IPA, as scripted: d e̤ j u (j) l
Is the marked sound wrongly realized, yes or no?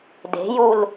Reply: yes